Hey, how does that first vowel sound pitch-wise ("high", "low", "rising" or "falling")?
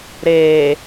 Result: low